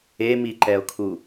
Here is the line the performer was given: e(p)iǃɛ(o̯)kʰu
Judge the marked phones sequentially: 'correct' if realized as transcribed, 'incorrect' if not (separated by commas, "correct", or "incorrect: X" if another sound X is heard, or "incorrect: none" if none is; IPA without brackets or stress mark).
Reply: incorrect: m, correct